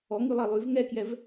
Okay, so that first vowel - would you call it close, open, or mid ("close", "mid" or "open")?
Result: mid